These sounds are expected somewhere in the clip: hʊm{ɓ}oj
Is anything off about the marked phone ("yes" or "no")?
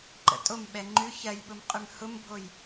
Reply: yes